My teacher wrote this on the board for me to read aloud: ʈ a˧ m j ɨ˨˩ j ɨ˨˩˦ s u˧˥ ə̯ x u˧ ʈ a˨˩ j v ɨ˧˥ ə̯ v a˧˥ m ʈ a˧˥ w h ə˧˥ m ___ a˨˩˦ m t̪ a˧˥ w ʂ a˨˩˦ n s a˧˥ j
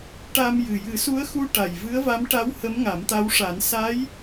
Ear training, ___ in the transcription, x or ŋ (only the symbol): ŋ